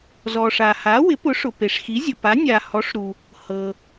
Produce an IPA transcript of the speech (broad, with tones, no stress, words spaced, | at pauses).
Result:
zɔ˩ʂa˩ha˩˥ wɪ˩˥pʊ˩˥ ʂʊ˩pe˩ʂxi˩˥zʲʊ˩ pa˩˥ nʲa˩ hɔ˩˥ʂɾu˩ | hɤ˩